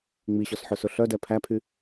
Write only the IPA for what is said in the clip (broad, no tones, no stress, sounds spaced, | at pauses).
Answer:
ŋ͡m i ɕ ɔ s ħ ɵ s ɵ ɬ œ d ɛ pʰ æ pʰ y